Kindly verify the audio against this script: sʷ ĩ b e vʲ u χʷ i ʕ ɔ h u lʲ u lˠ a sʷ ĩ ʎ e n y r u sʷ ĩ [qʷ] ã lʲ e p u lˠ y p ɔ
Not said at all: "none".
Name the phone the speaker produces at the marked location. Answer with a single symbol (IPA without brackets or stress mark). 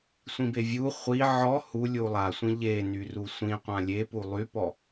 qʷ